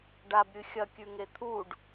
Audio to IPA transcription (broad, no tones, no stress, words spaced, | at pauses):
ɖabɾʲɨ xʲɐkʲʉŋe t̪ʰuɖ